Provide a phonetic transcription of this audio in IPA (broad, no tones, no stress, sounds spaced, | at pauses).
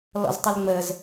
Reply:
l ɔ̰ z tˤ ə l ŋ͡m ə z